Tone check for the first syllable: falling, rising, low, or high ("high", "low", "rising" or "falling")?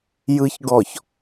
low